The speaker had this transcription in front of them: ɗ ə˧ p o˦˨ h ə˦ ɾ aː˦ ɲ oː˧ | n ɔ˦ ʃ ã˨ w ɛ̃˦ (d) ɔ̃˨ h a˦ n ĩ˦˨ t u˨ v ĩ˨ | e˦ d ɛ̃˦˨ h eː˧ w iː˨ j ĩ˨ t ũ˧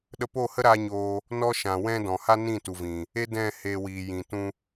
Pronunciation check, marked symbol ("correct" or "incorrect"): correct